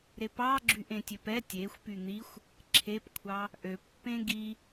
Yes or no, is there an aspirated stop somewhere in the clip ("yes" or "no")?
yes